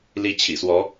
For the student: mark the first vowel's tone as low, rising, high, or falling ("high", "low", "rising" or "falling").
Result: rising